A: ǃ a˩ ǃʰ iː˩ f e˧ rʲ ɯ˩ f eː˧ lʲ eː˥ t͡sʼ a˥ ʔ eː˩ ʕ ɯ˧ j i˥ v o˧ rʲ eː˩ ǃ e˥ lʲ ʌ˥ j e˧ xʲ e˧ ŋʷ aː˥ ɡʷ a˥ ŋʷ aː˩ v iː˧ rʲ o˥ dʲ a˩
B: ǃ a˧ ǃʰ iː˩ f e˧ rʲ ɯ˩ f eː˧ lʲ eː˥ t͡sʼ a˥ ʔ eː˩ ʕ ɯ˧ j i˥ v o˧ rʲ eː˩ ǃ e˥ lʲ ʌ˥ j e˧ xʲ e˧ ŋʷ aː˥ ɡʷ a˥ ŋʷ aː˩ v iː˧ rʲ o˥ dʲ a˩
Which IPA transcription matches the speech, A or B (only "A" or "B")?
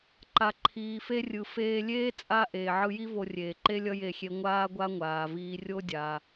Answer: A